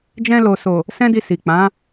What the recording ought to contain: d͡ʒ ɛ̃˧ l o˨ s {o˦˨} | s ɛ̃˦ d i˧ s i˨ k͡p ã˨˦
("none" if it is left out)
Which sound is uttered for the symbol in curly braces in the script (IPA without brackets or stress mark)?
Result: o˨